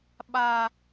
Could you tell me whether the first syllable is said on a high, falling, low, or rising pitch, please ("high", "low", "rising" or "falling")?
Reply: low